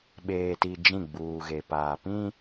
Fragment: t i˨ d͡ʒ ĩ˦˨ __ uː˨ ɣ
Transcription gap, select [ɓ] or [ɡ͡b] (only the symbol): ɡ͡b